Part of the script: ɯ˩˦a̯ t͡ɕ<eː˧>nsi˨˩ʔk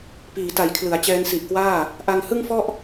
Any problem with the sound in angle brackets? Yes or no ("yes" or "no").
yes